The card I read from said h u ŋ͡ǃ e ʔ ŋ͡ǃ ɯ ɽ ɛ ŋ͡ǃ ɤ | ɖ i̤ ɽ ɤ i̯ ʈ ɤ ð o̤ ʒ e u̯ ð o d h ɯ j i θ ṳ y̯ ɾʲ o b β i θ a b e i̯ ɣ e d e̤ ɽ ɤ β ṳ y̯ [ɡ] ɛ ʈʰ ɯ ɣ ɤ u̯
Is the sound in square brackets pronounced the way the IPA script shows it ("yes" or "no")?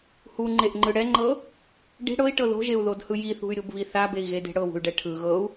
no